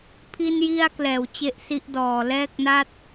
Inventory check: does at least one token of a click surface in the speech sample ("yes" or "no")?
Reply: no